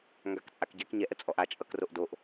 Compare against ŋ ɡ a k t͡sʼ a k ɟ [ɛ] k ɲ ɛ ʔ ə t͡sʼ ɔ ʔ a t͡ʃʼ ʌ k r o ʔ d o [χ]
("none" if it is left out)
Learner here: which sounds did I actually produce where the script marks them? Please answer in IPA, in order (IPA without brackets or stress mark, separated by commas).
ɛ, ʔ